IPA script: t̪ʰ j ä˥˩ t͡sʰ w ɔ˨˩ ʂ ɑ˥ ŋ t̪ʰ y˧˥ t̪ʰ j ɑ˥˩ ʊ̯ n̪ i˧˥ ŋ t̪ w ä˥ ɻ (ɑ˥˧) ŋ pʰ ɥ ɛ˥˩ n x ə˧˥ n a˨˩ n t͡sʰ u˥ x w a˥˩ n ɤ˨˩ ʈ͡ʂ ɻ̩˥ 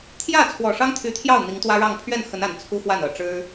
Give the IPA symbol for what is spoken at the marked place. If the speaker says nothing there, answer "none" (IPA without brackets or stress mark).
ɑ˥˧